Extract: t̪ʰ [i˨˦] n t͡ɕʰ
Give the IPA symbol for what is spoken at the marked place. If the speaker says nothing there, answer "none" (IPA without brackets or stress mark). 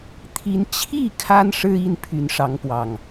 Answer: i˨˦